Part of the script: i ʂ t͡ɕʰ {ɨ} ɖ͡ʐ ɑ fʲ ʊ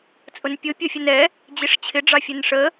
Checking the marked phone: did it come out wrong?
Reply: yes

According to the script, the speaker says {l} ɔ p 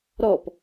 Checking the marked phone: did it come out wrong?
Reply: yes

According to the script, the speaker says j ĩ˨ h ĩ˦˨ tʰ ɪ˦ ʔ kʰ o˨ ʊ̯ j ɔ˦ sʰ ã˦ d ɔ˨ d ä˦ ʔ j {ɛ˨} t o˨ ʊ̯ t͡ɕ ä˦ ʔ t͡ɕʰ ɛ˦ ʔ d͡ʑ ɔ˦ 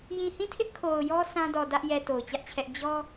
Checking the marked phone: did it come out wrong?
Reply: no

